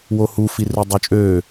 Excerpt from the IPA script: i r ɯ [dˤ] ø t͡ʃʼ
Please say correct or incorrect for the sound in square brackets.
correct